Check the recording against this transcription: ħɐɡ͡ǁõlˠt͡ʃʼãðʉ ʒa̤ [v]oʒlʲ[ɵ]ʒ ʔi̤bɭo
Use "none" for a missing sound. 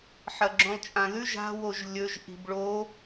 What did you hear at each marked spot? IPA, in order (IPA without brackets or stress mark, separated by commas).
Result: w, ɵ